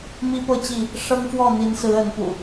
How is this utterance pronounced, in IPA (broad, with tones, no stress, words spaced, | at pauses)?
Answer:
mi˦pɤ˥˨t͡ɕi˥˨ | ʂɤ˦ŋfwɔ˥˨n̪i˨˦nsɹ̩˨˦ ə˨˦npṵ˨˩